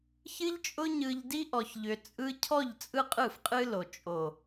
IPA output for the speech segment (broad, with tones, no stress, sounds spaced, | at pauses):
ç ɨ˧ ʎ t͡ʃʼ ʊ˧ ɲ ɯ˨ ʎ d i˧ ʔ ɔ˨ ç ʎ ʏ˨ t͡sʼ ɯ˧ cʰ ɔ˦˨ ʎ t͡sʼ ɯ˦ qʼ ɯ˦˨ f qʼ ɨ˦ l o˨ t͡ʃʼ o˨